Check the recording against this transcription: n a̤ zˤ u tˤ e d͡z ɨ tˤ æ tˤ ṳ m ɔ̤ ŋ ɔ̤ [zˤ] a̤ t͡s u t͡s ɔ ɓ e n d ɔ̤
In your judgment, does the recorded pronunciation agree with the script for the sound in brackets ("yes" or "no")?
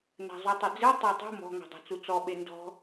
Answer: no